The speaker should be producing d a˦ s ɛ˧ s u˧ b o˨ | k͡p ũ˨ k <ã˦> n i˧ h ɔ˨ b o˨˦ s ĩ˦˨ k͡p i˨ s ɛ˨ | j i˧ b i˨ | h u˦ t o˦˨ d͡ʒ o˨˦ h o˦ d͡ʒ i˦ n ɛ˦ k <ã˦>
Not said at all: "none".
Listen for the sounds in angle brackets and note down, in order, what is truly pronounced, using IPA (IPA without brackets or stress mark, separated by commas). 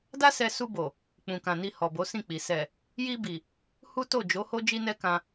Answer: ã˨, ã˧